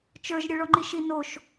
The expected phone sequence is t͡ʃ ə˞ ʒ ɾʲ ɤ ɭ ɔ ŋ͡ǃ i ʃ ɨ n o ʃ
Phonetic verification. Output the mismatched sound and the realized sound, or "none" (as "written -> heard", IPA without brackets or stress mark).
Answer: ɨ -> i